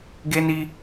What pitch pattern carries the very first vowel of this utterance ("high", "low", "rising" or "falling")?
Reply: high